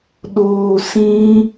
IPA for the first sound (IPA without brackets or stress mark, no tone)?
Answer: ɗ